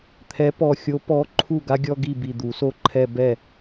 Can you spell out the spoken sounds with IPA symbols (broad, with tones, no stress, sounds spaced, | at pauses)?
t̪ʰ ɛ˨˥ p ɔ˧˩ xʲ o˨˥ p ɔ˨˥ ǃʰ u˥˩ ɡ a˥ ɡʲ ɔ˥˧ ɡ i˥˩ b i˧˩ d̪ u˨˩˦ s o˥ ǃʰ ɛ˥˧ b ɛ˥˩